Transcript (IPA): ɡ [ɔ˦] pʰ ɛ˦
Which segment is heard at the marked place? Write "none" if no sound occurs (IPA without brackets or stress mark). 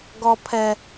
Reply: ɔ˦